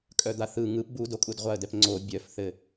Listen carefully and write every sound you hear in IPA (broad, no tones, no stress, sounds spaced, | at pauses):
kʼ œ d̪ a θ ɯ ŋ ɯ p b u d o kʼ u d ʁʷ a ə̯ d ɛ p ŋ͡ǀ o bʲ œ f θ ɘ